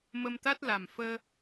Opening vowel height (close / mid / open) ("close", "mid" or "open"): mid